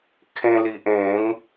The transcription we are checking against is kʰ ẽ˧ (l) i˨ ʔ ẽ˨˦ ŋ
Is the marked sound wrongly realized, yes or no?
no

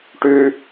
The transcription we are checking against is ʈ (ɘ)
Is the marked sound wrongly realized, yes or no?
yes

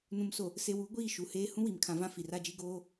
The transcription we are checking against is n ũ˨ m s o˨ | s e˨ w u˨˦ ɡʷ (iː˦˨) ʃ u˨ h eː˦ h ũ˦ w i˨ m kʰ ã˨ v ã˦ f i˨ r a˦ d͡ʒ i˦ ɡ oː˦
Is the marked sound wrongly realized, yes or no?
no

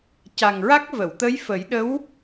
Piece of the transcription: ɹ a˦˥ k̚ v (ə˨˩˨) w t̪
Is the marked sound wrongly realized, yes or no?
no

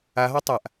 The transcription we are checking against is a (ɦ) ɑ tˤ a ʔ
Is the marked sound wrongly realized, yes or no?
no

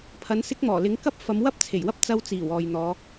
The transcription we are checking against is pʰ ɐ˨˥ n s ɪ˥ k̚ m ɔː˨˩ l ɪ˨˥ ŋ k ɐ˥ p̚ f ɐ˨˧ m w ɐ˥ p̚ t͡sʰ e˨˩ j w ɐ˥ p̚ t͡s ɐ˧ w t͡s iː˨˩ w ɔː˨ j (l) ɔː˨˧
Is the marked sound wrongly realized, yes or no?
yes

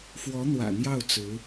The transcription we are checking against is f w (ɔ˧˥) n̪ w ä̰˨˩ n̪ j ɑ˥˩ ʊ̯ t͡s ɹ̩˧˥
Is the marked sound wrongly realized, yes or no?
no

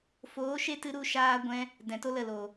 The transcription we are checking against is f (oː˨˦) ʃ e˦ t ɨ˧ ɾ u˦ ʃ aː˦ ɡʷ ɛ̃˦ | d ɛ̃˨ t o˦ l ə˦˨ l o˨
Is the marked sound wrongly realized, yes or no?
no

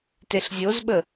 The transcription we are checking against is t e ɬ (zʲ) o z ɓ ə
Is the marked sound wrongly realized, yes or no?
no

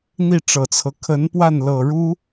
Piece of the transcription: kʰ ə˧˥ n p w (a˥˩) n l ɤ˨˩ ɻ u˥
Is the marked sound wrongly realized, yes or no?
no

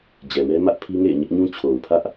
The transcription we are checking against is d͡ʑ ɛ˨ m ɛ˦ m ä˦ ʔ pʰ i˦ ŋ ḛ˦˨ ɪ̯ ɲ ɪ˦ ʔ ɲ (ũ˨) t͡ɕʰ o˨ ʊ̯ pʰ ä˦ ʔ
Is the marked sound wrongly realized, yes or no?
yes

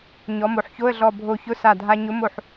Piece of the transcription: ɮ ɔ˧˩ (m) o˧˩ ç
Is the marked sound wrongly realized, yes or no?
yes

